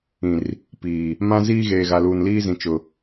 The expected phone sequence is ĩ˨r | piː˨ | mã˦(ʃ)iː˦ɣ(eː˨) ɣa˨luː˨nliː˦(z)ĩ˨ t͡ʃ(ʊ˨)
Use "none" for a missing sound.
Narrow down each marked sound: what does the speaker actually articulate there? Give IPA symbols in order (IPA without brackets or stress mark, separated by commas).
z, eː˨, z, ʊ˨